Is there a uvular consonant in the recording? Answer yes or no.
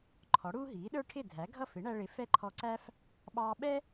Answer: no